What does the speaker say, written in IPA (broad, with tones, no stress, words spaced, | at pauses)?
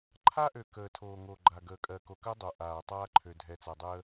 ǃʰa˦ʔø˨ kəː˨ tʰoː˨ŋo˨ɡ͡ǃa˨ ɡəː˨kʼɜ˨ko˨kɜ˦ dˤo˨ʔaː˨ tˤaː˦ǃʰø˨dʱɛ˨t͡sa˨ dˤəː˦